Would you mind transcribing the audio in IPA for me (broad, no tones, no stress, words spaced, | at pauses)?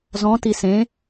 zɔ̃ tisẽ